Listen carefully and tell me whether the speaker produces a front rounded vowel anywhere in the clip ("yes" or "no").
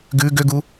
yes